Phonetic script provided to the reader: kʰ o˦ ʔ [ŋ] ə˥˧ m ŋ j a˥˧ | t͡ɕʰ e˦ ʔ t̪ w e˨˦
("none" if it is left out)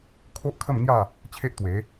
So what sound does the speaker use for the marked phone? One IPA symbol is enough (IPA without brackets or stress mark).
kʰ